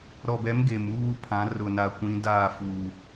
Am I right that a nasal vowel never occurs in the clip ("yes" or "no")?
no